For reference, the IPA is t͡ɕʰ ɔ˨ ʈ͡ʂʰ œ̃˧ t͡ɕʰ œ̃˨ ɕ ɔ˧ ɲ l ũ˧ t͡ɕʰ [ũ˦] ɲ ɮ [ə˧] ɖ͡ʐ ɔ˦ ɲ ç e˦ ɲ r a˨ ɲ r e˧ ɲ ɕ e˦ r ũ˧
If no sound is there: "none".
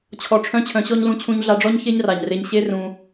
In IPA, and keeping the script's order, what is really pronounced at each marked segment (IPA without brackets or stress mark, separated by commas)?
ũ˧, a˧